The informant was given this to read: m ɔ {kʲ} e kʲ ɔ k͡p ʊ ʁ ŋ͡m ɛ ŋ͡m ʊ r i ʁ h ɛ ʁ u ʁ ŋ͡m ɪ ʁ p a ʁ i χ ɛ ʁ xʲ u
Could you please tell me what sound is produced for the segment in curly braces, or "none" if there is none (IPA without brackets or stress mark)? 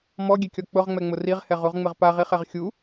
ɡʲ